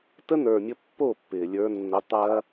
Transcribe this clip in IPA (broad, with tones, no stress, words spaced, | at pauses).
tə˦nə˞˨mʲə˧ pːo˦˨pːɪː˨ lʲə˞˧ nːə˧tˤɐː˦